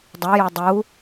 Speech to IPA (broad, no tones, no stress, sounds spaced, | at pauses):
dˤ œ j o dˤ u